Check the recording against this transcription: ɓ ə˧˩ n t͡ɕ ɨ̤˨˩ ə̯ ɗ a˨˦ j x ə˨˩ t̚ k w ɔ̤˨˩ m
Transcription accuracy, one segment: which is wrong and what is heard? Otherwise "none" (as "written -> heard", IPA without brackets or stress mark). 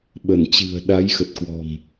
none